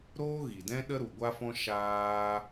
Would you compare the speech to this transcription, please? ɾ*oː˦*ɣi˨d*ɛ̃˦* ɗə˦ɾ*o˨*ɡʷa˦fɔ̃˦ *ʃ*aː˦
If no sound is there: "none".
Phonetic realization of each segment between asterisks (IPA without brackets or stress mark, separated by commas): oː˦, ɛ̃˦, u˨, ʃ